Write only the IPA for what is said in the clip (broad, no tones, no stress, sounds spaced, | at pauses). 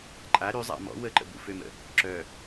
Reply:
ǃʼ a ɾ y zˤ a̰ m ɔ̰ w ə ǃ ə̰ b ṵ f ø m ə̰ | ǁ œ